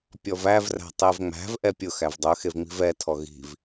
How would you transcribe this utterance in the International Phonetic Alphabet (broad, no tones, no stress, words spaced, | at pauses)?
pʲɔvævræ̤ tˤevŋ͡mæ̤vʔɛ pʲʊ xævdˤɵxev ŋ͡mi̤vɛtʰɔ ɣi̤v